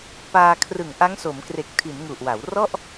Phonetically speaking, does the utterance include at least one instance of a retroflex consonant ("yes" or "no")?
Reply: no